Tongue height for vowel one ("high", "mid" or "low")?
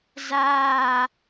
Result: low